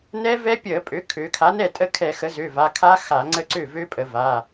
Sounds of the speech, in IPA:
nɛ˦˥vɛ˦˥pʲə˧˩˧pʼø˩˥ kʰø˩˧ kʰa˩˥nɛ˥˩tʼə˥˩kʰɛ˧˩˧ xə˩˥zø˩˧˩va˩˧˩kʰa˦˥ xa˧˩˧ŋ͡ǀə˥˩ǀø˥˩vø˦˥ pʼə˩˧va˩˧˩

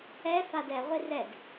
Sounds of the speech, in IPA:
ɛ fadɛ ʁʷirɛd

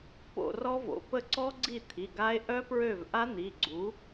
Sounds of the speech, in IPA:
po̰˦˨rɔ˦˥vo̰˩˧˩ pə˦˨ǀɔ˦˥ɡ͡ǀi˦˨t̪ʰi˩˧˩ ɡa˦˥e̯ ʔœ˦˥pɹø˦˨vʔa˦˥ n̪i˩˧˩ɡ͡ǀu˩˥

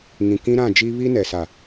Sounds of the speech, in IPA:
ŋĩ˨kĩ˦ɾã˦˨d͡ʒi˦ βi˦nɛ˨sa˨

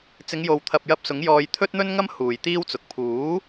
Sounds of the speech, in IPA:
t͡sɪ˨˧ŋjo˨wt̪ʰɐ˨p̚jɐ˧p̚ sʊ˨˥ŋjɔː˧j t̪ʰɵ˥t̚n̪ɵ˥nŋɐ˥m huː˨jt̪iː˥wt͡sʊ˨k̚ pʰuː˨˥

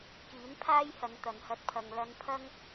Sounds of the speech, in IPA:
kiː˨˥npʰaː˥j hɐ˨˧n t̪ɐ˨nhɐ˧t̚pʰɐ˨ŋ lɐ˧n pʰɐ˥ŋ

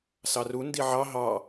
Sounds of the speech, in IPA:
sɑru ndiʕɑ ɦɑ

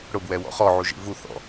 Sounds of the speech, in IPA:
ɽʊbwɛwɔ̰ χɔʕuʒḭ vuθɔ̰

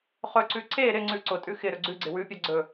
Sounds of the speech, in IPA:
χɵǀʉ ǀe ɾɪ ŋ͡ǀʉǀʊtʼʉ xɪɾɵ ɡ͡ǀʉɡ͡ǀɪ wʉpʲa ɡ͡ǀɵ

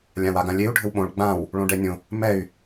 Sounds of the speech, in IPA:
lʲãwaɡãlʲeu̯ ɖʱɘwɓõɭ ɡ͡bãw | ɭõɖɛnʲõ | mɛy̯

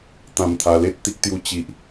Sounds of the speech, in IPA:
t̪ã˧mt̪ʰa˧le˦t̚ t̪i˦k̚t̪ju˦ t͡ɕi˦ʔ

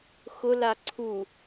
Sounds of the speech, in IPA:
xʊla ǀʰu

